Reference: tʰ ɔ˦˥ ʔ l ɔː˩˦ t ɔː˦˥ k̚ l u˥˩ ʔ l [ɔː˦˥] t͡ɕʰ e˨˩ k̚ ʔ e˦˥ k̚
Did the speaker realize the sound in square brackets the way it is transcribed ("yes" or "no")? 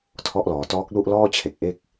no